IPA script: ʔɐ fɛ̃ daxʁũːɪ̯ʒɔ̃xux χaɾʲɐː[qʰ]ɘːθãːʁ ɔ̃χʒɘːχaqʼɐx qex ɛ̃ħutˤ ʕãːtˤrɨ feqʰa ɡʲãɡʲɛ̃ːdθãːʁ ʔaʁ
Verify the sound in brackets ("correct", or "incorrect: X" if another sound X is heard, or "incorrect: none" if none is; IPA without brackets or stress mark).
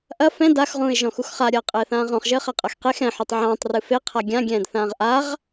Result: incorrect: qʼ